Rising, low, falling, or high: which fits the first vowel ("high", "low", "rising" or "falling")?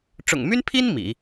low